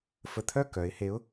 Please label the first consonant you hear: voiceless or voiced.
voiceless